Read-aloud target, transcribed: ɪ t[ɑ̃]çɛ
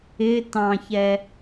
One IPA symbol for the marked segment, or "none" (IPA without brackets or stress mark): ɑ̃